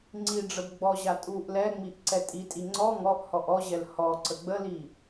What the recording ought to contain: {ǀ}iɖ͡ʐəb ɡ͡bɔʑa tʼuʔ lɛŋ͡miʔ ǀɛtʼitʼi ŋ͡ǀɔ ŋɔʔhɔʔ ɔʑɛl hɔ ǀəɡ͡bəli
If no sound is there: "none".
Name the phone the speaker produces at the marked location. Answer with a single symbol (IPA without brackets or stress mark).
ŋ͡ǀ